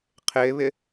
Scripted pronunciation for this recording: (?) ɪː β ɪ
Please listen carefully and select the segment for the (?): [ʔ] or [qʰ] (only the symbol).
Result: qʰ